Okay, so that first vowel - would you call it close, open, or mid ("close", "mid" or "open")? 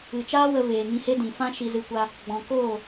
close